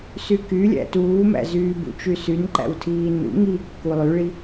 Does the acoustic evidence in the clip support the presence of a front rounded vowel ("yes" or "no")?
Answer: yes